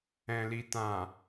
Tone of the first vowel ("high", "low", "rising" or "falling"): low